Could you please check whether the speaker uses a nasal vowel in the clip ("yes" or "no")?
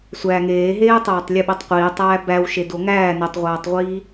no